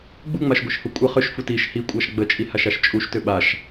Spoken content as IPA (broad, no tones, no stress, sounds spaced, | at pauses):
ɡ͡b u ŋ͡m a ʃ ɡʷ i ʃ h u kʷʼ ə χ ʏ ʃ f u t i ʃ h i kʷʼ a ʃ ɡ͡b ə t͡ʃʼ i h a ʃ a ʃ t͡ʃʼ u ʃ t ʏ ɓ a ʃ